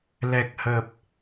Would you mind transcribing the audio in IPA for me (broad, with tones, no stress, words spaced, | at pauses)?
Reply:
lɛ˨˩k̚hə˨˩p̚